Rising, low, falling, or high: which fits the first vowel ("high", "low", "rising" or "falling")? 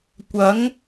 rising